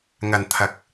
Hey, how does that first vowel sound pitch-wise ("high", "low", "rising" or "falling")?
low